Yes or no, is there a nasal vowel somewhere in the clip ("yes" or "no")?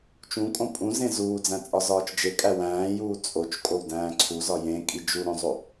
yes